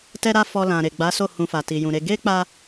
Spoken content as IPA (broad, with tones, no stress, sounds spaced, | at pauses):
t ɛ˦ ɾ a˦ f ɔ˧ l ã˨ ɾ e˨ ɡ͡b a˨˦ s o˦˨ h ũ˧ f a˨ t i˨ j ũ˨ ɾ e˧ ɡ e˦ k͡p a˧